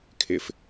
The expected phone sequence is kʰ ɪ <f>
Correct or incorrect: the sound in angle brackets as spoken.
correct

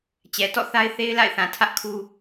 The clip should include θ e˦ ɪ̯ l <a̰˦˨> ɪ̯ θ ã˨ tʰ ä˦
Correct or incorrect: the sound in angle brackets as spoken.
correct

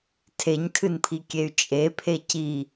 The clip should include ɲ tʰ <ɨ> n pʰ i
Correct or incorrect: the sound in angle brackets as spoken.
correct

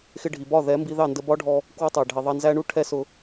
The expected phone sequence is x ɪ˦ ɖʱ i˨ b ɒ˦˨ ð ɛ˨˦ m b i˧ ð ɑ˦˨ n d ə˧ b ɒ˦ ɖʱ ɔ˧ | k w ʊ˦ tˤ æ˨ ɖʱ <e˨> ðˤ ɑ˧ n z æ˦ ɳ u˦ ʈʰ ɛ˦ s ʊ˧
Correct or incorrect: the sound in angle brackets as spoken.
incorrect: i˨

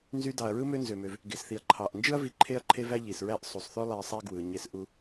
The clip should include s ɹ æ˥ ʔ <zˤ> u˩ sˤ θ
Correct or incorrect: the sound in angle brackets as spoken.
incorrect: sˤ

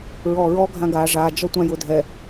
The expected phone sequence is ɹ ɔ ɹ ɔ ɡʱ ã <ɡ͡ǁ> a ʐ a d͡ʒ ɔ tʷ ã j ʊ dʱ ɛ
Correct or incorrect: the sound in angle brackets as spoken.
incorrect: ɡ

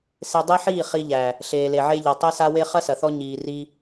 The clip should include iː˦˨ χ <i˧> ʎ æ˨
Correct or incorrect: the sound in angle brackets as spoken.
correct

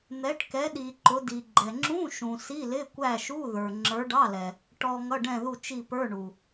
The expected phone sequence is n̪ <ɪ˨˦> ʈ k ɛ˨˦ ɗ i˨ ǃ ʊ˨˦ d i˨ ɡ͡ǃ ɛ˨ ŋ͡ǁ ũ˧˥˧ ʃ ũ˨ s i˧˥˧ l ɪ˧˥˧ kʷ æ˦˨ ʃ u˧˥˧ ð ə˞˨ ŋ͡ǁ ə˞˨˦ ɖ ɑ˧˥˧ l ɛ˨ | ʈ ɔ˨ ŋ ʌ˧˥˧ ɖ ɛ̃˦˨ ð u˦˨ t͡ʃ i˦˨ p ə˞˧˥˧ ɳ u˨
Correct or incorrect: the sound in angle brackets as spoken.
incorrect: ɛ˨˦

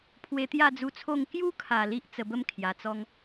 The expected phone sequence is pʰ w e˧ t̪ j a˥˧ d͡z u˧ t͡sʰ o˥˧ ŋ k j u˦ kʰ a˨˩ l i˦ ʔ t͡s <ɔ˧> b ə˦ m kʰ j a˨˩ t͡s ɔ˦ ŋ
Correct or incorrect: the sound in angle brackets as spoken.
incorrect: ə˧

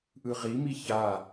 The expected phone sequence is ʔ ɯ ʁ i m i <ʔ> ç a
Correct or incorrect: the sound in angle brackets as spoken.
incorrect: none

